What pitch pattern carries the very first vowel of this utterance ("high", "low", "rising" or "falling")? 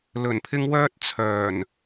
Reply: low